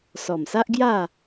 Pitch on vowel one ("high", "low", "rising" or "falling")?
low